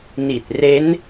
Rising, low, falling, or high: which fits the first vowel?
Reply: low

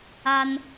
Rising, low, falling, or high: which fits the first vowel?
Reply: high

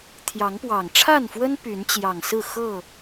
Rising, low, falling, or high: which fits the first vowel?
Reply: rising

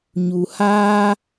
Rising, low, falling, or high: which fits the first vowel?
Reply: low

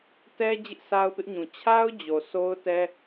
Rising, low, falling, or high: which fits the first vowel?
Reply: high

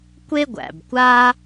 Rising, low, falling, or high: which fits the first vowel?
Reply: high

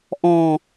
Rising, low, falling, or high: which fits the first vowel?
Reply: low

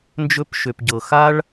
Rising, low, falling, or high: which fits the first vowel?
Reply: high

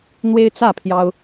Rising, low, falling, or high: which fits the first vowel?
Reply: high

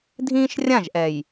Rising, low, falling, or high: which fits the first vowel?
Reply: high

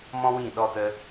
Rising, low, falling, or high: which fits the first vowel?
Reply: high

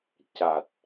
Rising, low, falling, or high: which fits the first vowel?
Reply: low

